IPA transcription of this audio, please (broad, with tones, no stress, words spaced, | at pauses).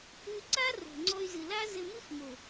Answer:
ʉ˧ǀa˦ ro̤˨ŋ͡ǀɔ˧y̯ zɨ˨la˦zɘ˧mɨ˦x mo˨